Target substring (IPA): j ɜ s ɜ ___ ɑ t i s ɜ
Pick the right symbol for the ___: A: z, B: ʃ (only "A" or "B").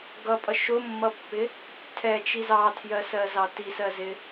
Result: A